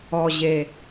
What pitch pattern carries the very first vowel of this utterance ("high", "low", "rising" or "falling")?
low